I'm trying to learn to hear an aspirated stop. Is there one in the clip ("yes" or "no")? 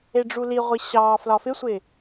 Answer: no